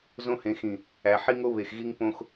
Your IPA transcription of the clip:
zõ˦hẽ˨˦xĩ˨ | æ˨ħi˦ŋo˦ βe˨xɣi˦ŋ põ˦x

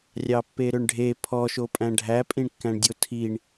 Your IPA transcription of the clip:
rʲɑpːeɾøɳɖʱe pʰɔʃopʼæ̃ ɖʱæpʼĩɳkːæ̃ɳdʲo tʰiɳ

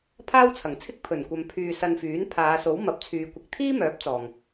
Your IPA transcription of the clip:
pʰaː˥wt͡sʰɐ˨˩ŋt͡sʰɪ˥k̚ pʰɵ˨˩nkʷɐ˨m pʰyː˧sɐ˧nfyː˨˥n pʰaː˨˧so˨˥w mɐ˨p̚t͡sʰyː˨˧ kʷɪ˧k̚ t̪ʰiː˥mœː˨˥p̚ t͡sɔː˨ŋ

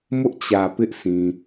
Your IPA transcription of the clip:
mʊ˦ʔt͡ɕä˨ pɪ˦ʔsʰĩ˨

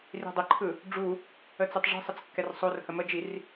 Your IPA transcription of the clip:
ri̤dˤɘǃʰɯ | ɖ͡ʐu | ət͡sɘtˤʐi̤sˤət͡s kːɛrsˤorhə məd͡ʒir

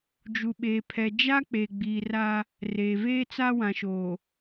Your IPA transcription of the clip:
d͡ʒu˨ɓeː˨pʰɛ˨ d͡ʒa˦ k͡peː˨ɡ͡biː˨ra˦ | reː˨veː˦t͡sa˦ wã˨ʃoː˨

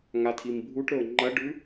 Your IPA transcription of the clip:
ŋatʰimbʱuʈɾɵo̯ ŋ͡ǃɐɖʉ

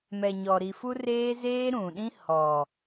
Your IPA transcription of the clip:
mɛ˨ɲɔ˨ ɾi˨fu˦reː˦ zeː˦ɾũ˨ɗĩ˦ hɔ˨

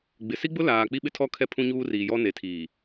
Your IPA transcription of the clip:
ɡ͡bɪ˨ si˦ɡ͡bʊ˦laː˨ k͡pi˦ɓɪ˦tʰɔ˦ kʰɛ˦pʰũ˦ɲuː˦ riː˨jɔ˦ ne˨tʰiː˨

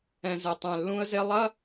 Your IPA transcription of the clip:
ɛ̃˨zɛ˨tˤɛ̃˨ lːũ˦ə̯ze˦ lˠɐ˦

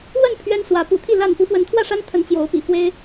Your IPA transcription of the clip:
wə˥˨n pʰɥɛ˦nswä˨˦ pṵ˨˩t̪ʰi˥˨ la˥˨n pu˨˦fwə˨˦nt̪ʰwä˥˨ʂa˦n t̪ʰə˨˦nt͡ɕjo˨˦ʊ̯ pḭ˨˩ fwe˦ɪ̯

